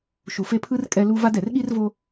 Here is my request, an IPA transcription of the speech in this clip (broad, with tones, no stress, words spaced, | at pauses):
ʃu˨fe˦pʰɯ˥r kʼɛ˦lu˥ va˦d ɛ˩rɠi˥rvo˦